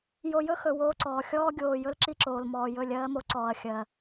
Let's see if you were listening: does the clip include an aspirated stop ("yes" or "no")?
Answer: no